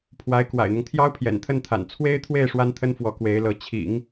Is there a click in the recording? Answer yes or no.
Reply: no